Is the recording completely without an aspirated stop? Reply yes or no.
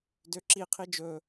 no